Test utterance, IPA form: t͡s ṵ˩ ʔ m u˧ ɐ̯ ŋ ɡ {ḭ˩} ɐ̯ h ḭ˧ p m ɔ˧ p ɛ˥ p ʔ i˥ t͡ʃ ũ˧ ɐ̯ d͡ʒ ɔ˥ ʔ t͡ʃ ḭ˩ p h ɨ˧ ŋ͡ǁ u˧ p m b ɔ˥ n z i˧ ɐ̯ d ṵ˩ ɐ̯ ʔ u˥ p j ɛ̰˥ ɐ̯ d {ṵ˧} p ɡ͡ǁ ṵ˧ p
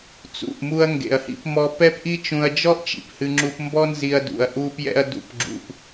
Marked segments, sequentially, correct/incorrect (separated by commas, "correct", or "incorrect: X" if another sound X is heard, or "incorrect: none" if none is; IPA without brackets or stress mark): incorrect: ḛ˩, correct